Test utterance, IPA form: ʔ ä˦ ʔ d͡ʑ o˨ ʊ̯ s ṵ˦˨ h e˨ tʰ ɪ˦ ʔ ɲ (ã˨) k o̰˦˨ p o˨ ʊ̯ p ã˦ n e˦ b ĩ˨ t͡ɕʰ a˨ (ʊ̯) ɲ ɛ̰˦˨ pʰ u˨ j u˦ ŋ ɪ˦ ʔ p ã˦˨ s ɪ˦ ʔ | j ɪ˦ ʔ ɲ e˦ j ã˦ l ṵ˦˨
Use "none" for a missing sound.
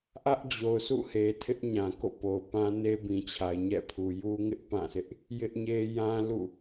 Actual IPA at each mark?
ã˨, ɪ̯

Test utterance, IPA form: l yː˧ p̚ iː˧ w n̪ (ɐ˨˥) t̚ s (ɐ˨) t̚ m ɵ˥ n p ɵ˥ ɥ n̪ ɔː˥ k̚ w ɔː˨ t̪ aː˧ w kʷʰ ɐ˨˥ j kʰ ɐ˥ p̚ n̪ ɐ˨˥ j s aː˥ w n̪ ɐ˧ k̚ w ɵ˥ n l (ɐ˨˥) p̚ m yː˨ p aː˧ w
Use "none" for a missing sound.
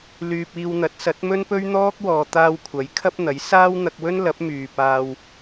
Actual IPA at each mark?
ɐ˨˥, ɐ˨˥, ɐ˨˥

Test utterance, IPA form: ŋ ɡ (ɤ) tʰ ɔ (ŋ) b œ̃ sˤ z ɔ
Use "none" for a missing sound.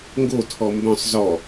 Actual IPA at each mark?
o, m

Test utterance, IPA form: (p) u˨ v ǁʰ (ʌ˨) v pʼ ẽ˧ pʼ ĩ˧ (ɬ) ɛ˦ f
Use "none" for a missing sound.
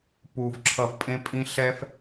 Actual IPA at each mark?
p, ʌ˨, ɬ

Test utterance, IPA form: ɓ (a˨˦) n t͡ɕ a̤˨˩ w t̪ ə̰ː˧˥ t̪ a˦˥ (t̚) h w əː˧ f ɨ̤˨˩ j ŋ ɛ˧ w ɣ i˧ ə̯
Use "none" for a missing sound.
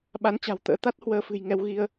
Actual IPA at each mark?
a˨˦, t̚

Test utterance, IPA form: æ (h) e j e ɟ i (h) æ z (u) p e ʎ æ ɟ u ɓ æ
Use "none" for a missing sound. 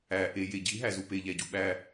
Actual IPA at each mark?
ʔ, ɦ, u

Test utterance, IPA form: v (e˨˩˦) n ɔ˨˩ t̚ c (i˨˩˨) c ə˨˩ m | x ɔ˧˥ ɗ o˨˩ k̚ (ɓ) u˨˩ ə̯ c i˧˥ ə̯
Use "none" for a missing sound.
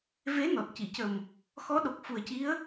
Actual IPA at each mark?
e˧˥, i˨˩˨, f

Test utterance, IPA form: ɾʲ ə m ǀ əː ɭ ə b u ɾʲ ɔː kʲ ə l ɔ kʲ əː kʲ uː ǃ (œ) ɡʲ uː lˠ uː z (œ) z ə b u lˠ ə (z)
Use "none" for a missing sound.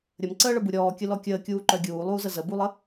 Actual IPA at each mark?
œ, ə, none

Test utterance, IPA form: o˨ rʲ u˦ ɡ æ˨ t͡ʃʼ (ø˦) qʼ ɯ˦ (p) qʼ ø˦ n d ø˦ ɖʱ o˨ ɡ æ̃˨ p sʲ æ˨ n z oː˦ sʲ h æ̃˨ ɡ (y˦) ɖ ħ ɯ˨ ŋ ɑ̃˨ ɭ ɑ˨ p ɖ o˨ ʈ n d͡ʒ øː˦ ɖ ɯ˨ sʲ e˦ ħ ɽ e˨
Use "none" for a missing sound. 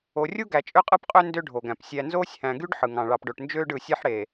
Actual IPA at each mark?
ø˦, p, y˦

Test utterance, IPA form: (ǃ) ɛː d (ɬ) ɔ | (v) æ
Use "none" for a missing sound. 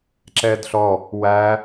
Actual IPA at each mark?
ǁ, ɬ, w

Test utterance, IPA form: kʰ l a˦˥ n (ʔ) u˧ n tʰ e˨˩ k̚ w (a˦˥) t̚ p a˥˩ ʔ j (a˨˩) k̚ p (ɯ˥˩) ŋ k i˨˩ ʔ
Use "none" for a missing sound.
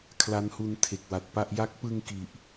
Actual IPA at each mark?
h, a˨˩, a˦˥, ɯ˧

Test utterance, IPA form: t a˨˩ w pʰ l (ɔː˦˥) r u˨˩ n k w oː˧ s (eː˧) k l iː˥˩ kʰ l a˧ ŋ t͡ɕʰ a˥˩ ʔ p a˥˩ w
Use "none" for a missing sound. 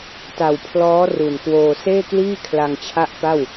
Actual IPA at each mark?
ɔː˦˥, eː˥˩

